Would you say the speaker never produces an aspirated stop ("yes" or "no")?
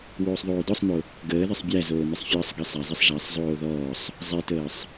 yes